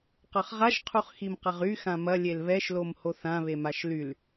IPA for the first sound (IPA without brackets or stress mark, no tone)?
q